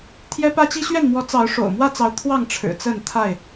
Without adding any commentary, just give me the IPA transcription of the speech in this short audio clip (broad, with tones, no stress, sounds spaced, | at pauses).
t̪ʰ j ɛ˦ p ä˦ t͡ɕ i˦ ɕ ɥ ɛ˥˨ n m w ɔ˨˦ t͡s ɑ˨˦ ʊ̯ ʂ o̰˨˩ ʊ̯ m w ä˥˨ t͡s ɑ˨˦ ʊ̯ t̪ʰ w ɑ˥˨ ŋ ʈ͡ʂʰ ɻ̩˨˩ t͡s ə˥˨ n t̪ʰ a˥˨ ɪ̯